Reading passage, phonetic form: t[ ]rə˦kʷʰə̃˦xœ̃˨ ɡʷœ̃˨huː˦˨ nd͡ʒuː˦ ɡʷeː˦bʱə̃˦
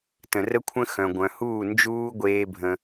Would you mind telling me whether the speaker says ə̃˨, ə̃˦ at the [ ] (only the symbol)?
ə̃˨